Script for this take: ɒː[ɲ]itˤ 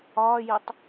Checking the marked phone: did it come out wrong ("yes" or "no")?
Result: yes